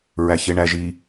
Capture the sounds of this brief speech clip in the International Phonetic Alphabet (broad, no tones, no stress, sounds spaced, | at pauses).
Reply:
ɹ æ ç e ɳ æ ʒ i